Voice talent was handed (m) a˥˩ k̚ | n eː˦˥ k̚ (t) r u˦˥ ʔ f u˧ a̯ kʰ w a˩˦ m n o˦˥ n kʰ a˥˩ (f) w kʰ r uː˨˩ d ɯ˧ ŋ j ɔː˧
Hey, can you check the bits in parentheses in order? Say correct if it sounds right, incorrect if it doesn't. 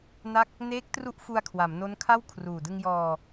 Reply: incorrect: n, correct, incorrect: none

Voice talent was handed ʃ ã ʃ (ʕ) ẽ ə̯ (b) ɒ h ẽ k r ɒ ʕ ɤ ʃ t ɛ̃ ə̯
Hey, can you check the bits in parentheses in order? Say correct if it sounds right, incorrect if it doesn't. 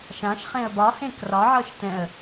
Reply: incorrect: χ, correct

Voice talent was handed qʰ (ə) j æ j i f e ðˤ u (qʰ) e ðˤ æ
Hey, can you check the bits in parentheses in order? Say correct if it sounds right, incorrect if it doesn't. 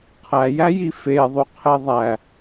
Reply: incorrect: æ, correct

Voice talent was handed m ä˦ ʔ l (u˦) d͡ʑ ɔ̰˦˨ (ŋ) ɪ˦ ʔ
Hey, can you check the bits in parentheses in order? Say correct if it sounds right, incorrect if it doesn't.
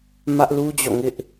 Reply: correct, correct

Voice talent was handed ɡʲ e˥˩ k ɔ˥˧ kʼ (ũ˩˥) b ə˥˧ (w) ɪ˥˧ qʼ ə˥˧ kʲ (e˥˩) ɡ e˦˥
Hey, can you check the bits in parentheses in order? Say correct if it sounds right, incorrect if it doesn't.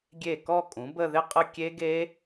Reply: correct, incorrect: ð, incorrect: e˦˥

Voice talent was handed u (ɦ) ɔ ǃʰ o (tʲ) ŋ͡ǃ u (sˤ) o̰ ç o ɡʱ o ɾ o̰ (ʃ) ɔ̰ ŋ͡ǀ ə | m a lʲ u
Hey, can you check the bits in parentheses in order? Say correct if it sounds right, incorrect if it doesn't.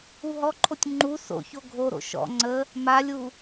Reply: correct, correct, incorrect: s, correct

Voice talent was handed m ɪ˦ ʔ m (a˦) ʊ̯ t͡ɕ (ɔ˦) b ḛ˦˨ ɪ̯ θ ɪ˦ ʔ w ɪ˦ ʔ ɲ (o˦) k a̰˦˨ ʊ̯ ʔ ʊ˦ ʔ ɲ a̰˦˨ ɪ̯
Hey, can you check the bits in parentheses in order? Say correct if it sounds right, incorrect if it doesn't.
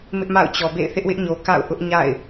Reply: incorrect: a̰˦˨, incorrect: ɔ˨, incorrect: o˨

